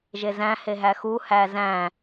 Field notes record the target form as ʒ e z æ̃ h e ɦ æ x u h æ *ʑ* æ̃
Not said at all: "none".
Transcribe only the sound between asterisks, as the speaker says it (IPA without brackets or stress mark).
z